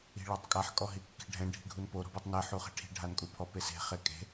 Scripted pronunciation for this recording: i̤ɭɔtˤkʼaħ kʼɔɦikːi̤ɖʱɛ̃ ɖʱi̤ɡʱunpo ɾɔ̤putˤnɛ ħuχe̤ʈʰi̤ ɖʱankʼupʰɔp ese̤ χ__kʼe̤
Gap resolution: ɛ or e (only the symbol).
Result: e